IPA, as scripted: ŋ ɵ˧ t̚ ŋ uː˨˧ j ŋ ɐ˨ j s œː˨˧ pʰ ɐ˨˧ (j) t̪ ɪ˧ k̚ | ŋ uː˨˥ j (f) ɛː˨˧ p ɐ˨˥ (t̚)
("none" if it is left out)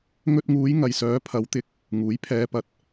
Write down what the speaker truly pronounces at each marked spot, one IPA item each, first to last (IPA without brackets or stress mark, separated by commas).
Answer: w, pʰ, t̚